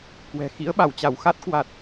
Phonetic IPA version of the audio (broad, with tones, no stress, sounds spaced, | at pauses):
k w ɛ̤˨˩ x ḭ˧˥ ə̯ ɓ a˧˩ w t͡ɕ a˧˩ w x a˦˥ t̚ k w a˨˩ t̚